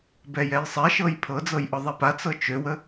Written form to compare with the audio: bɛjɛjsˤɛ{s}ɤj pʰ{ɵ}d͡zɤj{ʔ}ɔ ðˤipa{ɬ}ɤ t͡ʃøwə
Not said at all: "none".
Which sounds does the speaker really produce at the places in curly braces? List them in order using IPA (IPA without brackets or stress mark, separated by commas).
ʃ, ɤ, ʔ, t͡s